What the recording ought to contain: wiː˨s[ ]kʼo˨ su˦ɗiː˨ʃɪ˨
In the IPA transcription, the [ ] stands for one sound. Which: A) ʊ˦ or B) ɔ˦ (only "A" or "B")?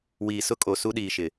A